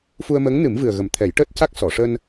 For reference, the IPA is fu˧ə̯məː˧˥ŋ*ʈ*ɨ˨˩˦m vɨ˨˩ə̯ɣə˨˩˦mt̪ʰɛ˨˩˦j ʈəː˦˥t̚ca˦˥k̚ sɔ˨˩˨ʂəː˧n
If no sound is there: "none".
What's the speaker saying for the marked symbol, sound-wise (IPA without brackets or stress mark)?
n